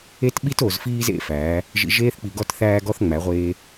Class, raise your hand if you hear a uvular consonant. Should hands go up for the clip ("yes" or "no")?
yes